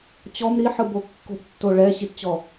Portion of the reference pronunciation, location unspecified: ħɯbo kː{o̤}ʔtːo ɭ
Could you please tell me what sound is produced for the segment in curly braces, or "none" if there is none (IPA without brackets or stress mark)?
o̤